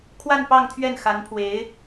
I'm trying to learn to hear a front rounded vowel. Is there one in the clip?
no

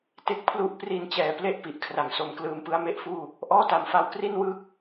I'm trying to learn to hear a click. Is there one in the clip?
no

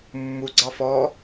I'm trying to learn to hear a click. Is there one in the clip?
yes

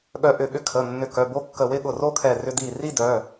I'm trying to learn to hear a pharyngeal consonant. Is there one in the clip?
no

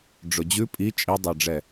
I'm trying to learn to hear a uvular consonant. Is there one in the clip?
no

